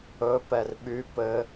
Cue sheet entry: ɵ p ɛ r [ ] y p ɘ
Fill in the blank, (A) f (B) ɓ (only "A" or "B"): B